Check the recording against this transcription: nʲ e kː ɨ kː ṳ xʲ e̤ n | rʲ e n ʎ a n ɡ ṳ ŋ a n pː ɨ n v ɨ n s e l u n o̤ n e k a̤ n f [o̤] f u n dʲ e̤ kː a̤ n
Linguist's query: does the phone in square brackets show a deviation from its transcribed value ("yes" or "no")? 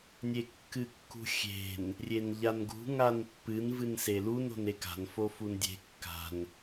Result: yes